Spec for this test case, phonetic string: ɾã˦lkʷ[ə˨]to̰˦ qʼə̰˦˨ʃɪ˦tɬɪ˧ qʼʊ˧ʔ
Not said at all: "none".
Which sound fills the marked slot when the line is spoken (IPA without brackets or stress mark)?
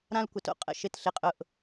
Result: ə˨